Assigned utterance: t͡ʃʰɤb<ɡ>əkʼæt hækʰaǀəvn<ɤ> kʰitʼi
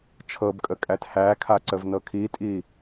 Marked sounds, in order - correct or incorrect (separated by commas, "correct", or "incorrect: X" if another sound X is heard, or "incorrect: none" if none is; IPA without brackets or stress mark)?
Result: incorrect: kʼ, correct